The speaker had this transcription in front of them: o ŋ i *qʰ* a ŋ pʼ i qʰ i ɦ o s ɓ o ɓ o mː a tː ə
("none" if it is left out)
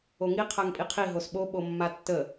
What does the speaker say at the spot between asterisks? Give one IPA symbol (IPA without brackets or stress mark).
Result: qʰ